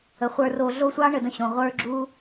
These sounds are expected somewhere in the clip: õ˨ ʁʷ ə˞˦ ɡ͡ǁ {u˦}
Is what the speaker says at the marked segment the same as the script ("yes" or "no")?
yes